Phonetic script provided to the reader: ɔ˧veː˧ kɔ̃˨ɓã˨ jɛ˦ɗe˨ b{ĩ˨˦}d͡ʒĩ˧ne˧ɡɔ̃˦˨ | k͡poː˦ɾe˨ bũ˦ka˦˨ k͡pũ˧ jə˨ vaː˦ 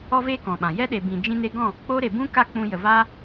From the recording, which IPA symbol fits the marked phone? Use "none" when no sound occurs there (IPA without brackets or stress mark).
ĩ˨